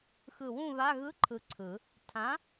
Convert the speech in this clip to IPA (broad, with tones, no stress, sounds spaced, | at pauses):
x ɯ˧˩ w ũ˥˨ β a˧˥˧ ɣ ɯ˧˥˧ ǃʰ ɯ˧˩ ǀʰ ɯ˨˩˦ | tʰ ã˨˥